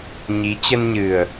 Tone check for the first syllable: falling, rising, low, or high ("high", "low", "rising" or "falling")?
rising